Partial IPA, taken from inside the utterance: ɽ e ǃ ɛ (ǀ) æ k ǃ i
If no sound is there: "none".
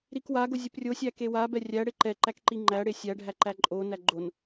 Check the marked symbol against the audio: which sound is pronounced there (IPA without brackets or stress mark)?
ǃ